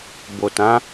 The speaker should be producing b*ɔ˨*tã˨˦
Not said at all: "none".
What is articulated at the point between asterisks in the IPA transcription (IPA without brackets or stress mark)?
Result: o˨